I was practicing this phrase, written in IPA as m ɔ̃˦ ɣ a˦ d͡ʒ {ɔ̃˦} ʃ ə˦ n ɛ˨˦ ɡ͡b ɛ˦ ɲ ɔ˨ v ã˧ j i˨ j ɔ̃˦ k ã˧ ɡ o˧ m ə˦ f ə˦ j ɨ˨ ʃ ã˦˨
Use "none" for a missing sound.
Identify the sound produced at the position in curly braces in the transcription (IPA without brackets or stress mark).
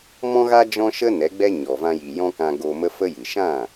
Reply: ɔ̃˦